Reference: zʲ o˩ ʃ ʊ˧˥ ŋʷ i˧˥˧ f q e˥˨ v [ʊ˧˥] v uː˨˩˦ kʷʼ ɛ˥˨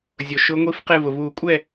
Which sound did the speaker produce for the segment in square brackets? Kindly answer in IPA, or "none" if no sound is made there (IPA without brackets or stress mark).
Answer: ʊ˩